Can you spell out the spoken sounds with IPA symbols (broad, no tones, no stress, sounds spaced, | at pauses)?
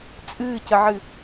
t͡sʼ ɨː c ə ʕ ɨ